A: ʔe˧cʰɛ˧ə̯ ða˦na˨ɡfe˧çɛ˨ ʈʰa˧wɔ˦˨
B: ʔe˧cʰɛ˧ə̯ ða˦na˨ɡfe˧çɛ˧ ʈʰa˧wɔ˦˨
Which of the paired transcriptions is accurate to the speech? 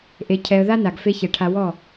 A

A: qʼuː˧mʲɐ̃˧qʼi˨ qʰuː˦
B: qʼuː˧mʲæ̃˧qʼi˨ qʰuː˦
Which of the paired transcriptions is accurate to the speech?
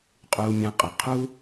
B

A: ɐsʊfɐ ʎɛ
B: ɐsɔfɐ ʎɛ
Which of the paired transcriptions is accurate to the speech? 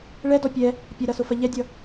A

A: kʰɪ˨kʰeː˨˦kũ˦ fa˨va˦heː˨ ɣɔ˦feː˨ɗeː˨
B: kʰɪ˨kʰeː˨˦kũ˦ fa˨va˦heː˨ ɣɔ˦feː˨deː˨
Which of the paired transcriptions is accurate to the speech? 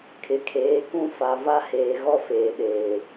A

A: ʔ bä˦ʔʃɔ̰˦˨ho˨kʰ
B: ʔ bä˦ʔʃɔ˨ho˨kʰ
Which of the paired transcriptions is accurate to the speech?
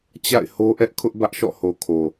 A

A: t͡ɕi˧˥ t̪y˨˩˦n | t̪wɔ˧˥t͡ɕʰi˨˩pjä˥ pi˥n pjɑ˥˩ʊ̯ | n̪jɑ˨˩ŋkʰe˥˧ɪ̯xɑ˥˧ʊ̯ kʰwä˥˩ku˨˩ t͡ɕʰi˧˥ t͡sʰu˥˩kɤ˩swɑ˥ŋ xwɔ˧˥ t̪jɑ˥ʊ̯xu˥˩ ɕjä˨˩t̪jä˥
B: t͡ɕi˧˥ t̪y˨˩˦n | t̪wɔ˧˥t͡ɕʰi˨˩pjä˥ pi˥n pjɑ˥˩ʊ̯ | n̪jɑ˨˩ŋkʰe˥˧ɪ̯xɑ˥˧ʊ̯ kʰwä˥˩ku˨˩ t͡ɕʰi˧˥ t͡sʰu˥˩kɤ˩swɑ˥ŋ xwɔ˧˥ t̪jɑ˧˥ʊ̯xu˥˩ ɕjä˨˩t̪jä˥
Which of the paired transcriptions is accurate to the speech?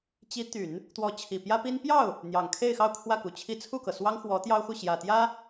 A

